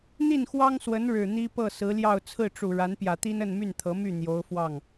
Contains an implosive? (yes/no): no